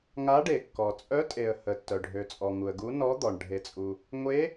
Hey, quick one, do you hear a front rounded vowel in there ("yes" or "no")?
yes